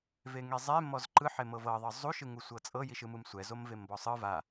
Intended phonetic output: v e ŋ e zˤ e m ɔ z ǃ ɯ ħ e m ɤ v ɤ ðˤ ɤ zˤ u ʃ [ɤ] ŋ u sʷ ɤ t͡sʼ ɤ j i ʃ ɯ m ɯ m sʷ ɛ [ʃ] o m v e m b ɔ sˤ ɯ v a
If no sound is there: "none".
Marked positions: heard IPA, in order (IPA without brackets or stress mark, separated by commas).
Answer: ɯ, z